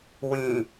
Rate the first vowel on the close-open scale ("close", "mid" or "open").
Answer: close